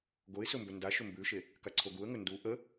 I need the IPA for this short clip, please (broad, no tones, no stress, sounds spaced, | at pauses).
ɡ o ɪ̯ s ɵ m b ɵ n d a ʃ ɵ m b ʉ ʃ e | k a ǀʰ o ɡ u ə̯ ŋ ɵ n d u ʔ ə